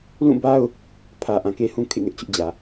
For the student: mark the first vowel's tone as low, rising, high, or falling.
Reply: falling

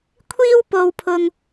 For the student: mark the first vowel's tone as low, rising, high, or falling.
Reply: high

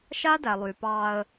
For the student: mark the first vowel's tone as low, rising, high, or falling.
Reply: high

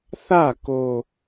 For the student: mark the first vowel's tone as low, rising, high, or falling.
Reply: falling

